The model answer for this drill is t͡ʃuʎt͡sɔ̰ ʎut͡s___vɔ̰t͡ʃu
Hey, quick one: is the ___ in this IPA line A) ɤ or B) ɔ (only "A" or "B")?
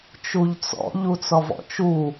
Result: B